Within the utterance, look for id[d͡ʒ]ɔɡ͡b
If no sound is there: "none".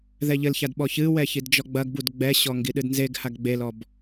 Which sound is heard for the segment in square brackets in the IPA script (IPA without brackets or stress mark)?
d͡ʒ